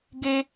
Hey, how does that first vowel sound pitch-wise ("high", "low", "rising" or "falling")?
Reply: high